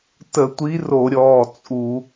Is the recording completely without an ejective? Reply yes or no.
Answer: no